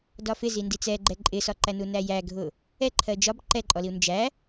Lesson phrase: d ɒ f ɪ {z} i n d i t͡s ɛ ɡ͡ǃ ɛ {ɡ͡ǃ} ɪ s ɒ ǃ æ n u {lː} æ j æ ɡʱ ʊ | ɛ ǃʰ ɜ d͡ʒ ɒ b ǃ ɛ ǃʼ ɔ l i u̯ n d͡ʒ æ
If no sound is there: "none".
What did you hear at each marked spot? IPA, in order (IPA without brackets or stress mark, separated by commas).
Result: z, ǃʼ, n